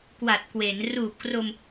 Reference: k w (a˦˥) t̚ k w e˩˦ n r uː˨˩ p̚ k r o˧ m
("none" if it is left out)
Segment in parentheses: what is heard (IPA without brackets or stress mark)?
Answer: a˨˩